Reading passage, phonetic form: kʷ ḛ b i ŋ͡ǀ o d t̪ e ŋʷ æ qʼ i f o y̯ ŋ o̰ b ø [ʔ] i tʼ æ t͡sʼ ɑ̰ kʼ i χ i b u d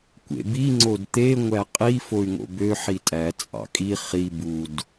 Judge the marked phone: incorrect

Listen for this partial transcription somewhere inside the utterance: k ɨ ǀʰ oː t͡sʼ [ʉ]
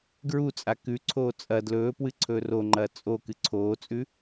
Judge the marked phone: correct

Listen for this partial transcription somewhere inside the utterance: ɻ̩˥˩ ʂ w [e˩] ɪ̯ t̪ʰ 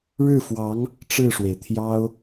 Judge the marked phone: correct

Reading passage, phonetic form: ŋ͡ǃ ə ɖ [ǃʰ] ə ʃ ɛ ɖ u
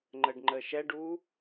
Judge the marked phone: incorrect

